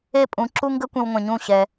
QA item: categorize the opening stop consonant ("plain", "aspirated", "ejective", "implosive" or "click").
ejective